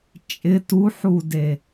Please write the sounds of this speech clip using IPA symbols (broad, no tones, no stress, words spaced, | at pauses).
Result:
t͡ʃʼɪ tuħude